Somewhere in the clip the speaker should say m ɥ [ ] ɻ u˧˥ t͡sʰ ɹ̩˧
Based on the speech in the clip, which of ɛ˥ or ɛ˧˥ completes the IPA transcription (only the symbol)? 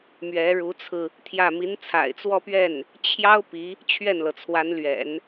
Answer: ɛ˧˥